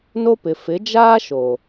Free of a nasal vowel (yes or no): yes